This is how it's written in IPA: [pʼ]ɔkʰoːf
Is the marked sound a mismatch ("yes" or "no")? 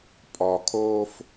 no